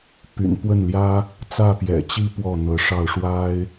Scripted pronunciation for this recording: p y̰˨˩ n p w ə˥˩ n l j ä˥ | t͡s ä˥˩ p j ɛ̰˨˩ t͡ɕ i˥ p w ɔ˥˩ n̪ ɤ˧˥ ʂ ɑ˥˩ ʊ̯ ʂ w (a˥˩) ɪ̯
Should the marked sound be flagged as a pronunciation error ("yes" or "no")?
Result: yes